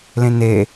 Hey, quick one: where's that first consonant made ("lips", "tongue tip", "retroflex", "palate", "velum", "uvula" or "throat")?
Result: tongue tip